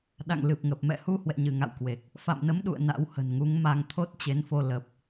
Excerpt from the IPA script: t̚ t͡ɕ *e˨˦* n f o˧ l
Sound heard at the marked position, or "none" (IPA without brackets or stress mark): e˨˦